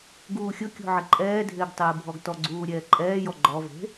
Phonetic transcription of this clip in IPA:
ɡ uː xʲ ʊ kʲ o̤ ʕ ɪ ǃʼ ɛː dʱ ɪː ɡ tˤ ɪː bʱ ɔ ɡ t ɔ ɡ͡ǀ uː ɾʲ ɛː ǃʼ ɛː j ɔ ɡ͡ǃ ɔ v e̤

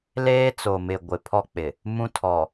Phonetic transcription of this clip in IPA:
l eː˦ t͡s o˨ m ɪ˨ ɡʷ ɪ˨ pʰ ɔ˦ k͡p ɪ˨ | m ũ˦ tʰ ɔ˨

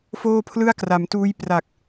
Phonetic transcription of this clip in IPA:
f oː˥˩ pʰ l ɯ˥˩ a̯ k r a˩˦ m t uː˦˥ j p r a˨˩ k̚

